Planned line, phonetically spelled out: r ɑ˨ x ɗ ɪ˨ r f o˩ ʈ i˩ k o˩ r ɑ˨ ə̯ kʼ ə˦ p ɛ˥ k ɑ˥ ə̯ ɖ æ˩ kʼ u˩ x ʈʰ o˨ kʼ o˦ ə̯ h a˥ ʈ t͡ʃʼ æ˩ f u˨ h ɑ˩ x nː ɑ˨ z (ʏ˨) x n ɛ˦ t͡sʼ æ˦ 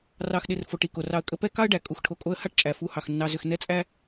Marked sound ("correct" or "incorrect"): correct